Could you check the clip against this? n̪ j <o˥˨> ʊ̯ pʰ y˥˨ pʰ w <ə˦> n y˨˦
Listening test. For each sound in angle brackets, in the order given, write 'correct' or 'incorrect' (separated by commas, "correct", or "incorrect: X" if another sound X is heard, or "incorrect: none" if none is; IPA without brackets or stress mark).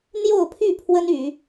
correct, correct